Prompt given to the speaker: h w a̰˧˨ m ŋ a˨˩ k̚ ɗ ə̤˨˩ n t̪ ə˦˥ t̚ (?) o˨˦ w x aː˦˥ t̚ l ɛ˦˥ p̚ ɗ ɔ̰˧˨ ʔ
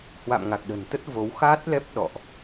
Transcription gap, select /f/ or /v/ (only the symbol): v